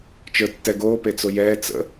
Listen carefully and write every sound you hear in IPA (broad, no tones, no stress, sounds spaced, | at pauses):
t͡ʃ ə˞ tː ɛ ɡ oː p e t͡s o j ɛː t͡s ə̰